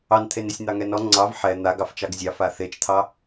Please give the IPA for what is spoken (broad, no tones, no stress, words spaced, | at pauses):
ɑnt̪ʰenesʲ n̪ɑŋɛnɔ ŋ͡ǀɑv ħɛ n̪aɡ ɑft͡ʃɑɡzʲɑ faθet͡ʃt̪ʰɑ